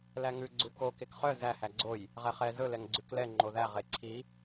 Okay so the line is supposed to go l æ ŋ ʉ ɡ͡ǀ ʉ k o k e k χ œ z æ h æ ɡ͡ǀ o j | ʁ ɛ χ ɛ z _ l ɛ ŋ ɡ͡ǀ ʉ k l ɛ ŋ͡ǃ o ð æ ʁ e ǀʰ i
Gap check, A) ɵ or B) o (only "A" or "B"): A